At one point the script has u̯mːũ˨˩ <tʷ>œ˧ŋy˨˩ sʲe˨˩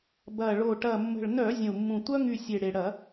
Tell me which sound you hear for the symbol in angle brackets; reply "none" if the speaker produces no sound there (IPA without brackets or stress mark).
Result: tʷ